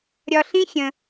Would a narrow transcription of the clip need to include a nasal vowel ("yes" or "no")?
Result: yes